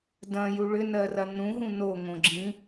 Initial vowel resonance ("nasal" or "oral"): nasal